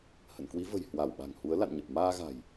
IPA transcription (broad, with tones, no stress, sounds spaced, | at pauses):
h ə̰˧˨ n k w i˨˦ v ə̤˨˩ j h w a˧˩ w ɓ a̤˨˩ ŋ h u˨˦ ə̯ l a̰˧˨ n ɲ ə˨˩ p̚ m aː˧ ɣ a̤˨˩ j